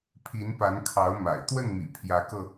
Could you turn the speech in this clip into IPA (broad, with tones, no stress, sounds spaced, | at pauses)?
pʰ i˧˥ n p a˧˥ n kʰ ɑ˧˥ ʊ̯ m a̰˨˩ ɪ̯ t̪ w ə˥˩ n m ḭ˨˩ pʰ j ä˧˥ k ɤ˧